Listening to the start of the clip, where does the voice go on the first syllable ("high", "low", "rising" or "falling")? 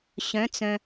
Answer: rising